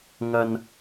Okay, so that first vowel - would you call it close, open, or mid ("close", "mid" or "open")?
open